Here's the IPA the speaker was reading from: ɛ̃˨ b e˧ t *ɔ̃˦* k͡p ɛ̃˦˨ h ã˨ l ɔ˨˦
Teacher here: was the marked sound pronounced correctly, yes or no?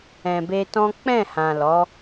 yes